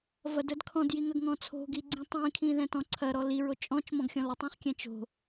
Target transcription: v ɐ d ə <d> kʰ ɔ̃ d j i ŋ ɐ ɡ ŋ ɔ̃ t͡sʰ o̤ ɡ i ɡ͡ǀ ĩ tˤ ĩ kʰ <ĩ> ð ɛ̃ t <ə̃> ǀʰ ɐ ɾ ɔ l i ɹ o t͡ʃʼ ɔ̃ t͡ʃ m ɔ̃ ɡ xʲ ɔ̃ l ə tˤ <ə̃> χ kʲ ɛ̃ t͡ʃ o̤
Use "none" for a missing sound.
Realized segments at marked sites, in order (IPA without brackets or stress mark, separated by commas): d, ĩ, ɔ̃, ɛ̃